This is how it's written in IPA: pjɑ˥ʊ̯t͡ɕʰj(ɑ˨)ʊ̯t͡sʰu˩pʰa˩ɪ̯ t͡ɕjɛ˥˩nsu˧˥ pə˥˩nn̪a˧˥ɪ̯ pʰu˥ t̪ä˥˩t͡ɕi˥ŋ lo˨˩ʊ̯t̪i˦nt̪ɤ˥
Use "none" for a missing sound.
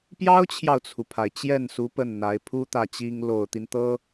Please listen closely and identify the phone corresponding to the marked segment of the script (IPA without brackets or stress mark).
ɑ˨